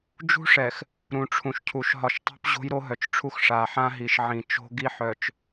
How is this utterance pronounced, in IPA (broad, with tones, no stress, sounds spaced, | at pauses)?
d͡ʒ ṳ˦ ʂ ɛ˨ x | ɾ ũ˨ ʈ͡ʂʰ ũ˨ ʃ cʰ u˨ ʃ ɦ ɒ˨ ʃ tˤ o̤˦ p ʑ o̤˦ j ɾ o˦ ɦ œ˨ t͡ʃ ʈ͡ʂʰ u˦ x ʂ a˨ ħ ã˦ ɦ i˨ ʃ ʕ ĩ˨ t͡ʃ o̤˦ ɡ i˦ ħ œ˨ t͡ʃ